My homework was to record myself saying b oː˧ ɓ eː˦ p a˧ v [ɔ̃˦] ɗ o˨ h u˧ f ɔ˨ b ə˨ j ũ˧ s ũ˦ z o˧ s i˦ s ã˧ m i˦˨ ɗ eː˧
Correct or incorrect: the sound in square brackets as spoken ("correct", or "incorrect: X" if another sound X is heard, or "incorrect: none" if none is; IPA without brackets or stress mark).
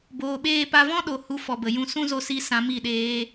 correct